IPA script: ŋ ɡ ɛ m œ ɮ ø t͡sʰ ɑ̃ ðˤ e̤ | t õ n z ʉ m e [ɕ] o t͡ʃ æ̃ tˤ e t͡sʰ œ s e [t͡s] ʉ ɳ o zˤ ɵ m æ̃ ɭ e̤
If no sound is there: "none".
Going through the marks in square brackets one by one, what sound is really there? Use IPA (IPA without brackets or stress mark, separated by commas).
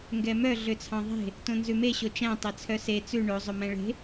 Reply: ɕ, t͡s